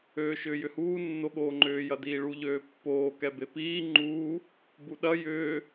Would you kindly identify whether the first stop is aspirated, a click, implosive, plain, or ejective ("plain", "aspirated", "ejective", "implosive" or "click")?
implosive